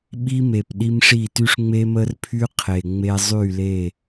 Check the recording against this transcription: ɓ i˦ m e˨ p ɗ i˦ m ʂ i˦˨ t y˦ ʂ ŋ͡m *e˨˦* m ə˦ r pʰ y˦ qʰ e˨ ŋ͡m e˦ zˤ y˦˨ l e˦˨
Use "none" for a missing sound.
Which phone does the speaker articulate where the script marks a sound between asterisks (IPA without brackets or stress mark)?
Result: e˦